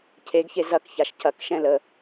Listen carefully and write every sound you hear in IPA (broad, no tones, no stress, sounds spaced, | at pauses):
cʰ e ɡ ç e z ɐ k ç a ʃ c ɐ k ʃ ɛ̃ l ə